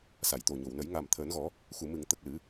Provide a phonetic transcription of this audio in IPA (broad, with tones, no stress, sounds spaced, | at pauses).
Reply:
s a˨˩˨ j t̪ o˨˩ ɲ o˨˩˨ w n ə˨˩˦ j ŋ a˨˩ m t̪ʰ əː˨˩˦ n ɣ ɔ˨˩˦ | x u˨˩˨ m ɨ˨˩˨ ŋ t̪ ə˨˩ k̚ l ɨ˨˩˦